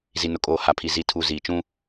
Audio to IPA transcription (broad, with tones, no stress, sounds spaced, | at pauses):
z i˨ n ʊ˨ kʼ oː˨ h a˨ pʰ i˨ z i˨ tʰ u˨ z iː˨ t͡ʃ ũ˦